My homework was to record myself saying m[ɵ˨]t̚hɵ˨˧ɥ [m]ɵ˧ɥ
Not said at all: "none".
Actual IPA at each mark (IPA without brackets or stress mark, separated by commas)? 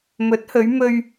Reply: ɵ˨˥, m